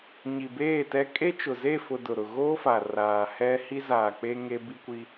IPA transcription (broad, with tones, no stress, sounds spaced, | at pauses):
ɲ i˨ b eː˦˨ t ɛ˦ kʼ e˦ t͡ʃ ʊ˨ z e˦˨ f ʊ˨ d ʊ˨ ɾ ʊ˨ ɣ oː˦ f a˨ r aː˨ h ɛ˦ h i˦ z aː˨ k͡p e˦ ŋ e˦ b i˦ kʷ i˦